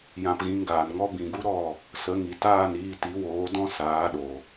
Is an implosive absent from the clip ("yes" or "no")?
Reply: no